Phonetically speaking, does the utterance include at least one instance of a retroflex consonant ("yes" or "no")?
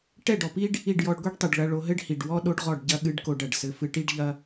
yes